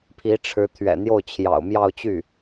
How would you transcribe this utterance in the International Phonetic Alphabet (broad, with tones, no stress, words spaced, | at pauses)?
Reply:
pʰi˧˥ʈ͡ʂʰɻ̩˧˥ t̪ʰɥɛ̰˨˩n̪jo˥˩ʊ̯ t͡ɕʰjɑ̰˨˩ʊ̯mjɑ˥˧ʊ̯t͡ɕy˥˩